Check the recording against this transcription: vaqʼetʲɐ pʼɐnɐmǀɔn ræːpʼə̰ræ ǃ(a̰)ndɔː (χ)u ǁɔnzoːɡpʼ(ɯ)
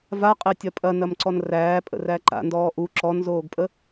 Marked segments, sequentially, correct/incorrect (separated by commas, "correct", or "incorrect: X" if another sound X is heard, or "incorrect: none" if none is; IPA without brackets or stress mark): correct, incorrect: ʔ, incorrect: ə